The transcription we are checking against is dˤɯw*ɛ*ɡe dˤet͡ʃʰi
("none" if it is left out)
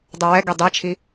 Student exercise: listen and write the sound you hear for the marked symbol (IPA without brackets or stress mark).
ɛ